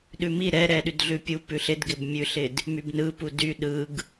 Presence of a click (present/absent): absent